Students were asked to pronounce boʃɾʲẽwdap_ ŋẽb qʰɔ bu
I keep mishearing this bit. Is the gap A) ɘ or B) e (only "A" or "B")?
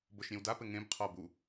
A